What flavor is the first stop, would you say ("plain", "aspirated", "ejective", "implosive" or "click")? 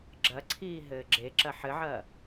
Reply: click